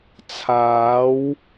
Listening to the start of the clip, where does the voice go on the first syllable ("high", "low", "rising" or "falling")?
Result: rising